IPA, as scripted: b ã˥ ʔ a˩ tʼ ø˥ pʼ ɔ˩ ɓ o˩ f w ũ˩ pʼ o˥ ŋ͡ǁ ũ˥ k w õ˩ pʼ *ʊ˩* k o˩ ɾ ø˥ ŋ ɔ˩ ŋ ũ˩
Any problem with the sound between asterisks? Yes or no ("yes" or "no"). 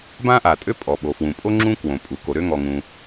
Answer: yes